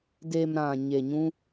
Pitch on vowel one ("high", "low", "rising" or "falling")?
low